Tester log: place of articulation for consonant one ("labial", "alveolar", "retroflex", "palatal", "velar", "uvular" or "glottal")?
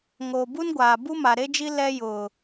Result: velar